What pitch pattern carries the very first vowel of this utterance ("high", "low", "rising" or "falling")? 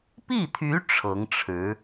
falling